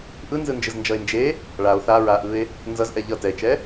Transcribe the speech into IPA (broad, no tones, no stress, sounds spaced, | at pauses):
ʔ ɯ n z ɯ n d͡ʒ ɯ z n d͡ʒ ʌ e̯ n d͡ʒ e | ɭ a o̯ θ a ɹ a ʔ ɯ e̯ | n z ʌ z ʔ ɛ ʎ ʌ t ɛ e̯ t͡ʃ ɛ